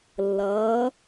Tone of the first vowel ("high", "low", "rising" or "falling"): rising